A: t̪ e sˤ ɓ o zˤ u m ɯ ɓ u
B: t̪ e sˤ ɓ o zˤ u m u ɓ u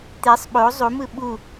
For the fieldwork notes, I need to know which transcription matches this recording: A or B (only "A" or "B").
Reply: A